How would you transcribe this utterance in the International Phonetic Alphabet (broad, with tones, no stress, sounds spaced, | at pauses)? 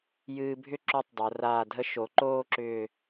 j ɨː˧ bʱ ʏ˥˧ ǁ o˥ tˤ dˤ o˩˧ r aː˧˩ dʱ ə˥˧ ʃ o˩˧ ǃ oː˥˧ ǁ ʏː˧˩